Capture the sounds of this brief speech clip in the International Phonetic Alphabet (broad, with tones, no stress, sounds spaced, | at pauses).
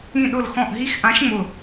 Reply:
ĩ˧˩ ɗ ʊ˧˩ l x ɔ̃˧˩ ʔ ɦ i˧˥ x ʔ ã˧˥ ʃ ŋ͡m ʊ˧˩